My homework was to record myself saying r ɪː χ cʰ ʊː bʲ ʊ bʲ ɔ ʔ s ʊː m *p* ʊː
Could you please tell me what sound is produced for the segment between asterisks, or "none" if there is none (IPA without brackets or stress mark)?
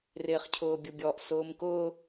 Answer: k